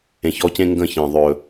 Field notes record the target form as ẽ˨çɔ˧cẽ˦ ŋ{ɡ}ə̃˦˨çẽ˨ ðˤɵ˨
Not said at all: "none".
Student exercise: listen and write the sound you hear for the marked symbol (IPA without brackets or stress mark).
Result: ɡ